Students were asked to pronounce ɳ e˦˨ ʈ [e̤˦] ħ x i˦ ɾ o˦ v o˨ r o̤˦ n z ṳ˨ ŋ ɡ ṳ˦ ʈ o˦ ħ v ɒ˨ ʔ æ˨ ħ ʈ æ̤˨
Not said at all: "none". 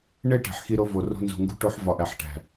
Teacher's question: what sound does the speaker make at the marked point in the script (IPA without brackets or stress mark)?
e̤˨